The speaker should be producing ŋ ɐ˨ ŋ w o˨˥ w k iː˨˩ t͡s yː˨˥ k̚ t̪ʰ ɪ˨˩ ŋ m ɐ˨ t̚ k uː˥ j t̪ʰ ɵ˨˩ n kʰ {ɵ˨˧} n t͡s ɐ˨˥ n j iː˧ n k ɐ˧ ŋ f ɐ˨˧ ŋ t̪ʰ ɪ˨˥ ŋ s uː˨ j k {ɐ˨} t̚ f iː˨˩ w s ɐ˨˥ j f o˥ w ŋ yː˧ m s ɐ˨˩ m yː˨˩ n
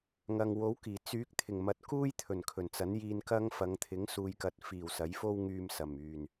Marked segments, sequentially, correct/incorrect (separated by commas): incorrect, correct